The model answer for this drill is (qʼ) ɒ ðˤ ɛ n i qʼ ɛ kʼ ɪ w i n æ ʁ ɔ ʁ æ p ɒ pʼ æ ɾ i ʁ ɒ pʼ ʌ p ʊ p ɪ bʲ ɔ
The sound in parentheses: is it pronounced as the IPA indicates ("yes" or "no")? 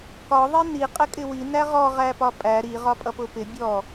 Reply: no